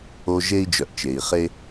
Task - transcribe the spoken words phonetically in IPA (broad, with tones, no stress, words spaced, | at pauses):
o˧ ʒe˥i̯d͡ʒœ˩ʔt͡ʃe˩i̯χe˥